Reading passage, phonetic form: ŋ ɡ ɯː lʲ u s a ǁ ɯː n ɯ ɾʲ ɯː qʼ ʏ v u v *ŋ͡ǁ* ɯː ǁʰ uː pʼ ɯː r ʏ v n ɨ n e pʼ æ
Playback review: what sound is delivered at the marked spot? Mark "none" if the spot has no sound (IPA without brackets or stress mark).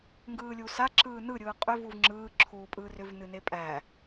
ŋ͡ǁ